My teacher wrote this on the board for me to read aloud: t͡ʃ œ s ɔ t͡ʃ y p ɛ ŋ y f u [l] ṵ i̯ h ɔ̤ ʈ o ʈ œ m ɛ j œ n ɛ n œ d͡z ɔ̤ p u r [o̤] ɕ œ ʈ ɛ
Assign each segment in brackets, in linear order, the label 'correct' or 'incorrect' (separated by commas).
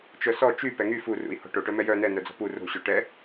incorrect, correct